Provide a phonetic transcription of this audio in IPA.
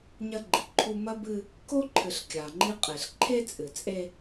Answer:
ɲ ɐ˦ ɡ͡ǃ i˨ ǃʰ u˦ m ɐ˦ b ɨ˦ | k o˦ ǃʰ ɨ˨ ɬ kʲ a˨ ŋ͡ǃ i˦ qʼ e˨ ɬ ǃʰ e˦ t͡sʼ ɨ˨ t͡sʼ e˦

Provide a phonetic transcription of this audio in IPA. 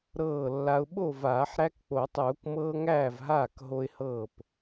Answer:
ɾ ɤː˥˩ lː a˦ ʊ̯ ɓ o˥˩ v aː˨˩˦ ħ ɾ æ˦ k k͡p o˨˩˦ tˤ uː˨˩˦ k m ɤː˦ ŋ æː˥˩ v ɦ aː˥˩ k ɦ o˦ ɪ̯ h ɤː˥˩ p

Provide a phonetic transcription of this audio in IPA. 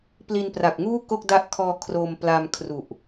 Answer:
p l i˧ n p r a˨˩ k̚ ŋ uː˥˩ k o˥˩ k̚ d a˦˥ ʔ kʰ ɔː˧ kʰ r o˧ m p l a˧ m kʰ r u˨˩ ʔ

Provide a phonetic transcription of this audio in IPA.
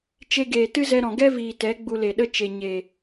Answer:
t͡ʃ e˧ ɡ eː˨ t ɨ˦ z ɛ˧ ɾ ɔ̃˨ ɡ ɛ˦ v iː˨ t ɛ˨˦ ɡ͡b u˧ l e˨ ɗ ə˦ t͡ʃ e˨ ɲ e˨

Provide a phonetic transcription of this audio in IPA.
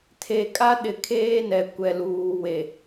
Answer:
tʰ e˨ kʼ a˦ ɗ ɪ˨ kʰ eː˦ n ɛ˨ kʷ ɛ˨ l uː˨ w e˨

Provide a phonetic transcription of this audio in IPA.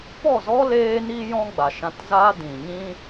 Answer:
p ɔ˦˨ z ɔ˦ l eː˦ n iː˦ j ɔ̃˦ ɡ͡b a˨ ʃ ã˧ t z aː˦ d ĩ˨ ɲ ĩ˦

